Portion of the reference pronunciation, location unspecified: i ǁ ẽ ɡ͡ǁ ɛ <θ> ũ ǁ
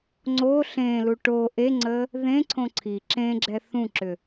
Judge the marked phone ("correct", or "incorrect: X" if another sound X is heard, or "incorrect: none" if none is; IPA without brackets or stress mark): correct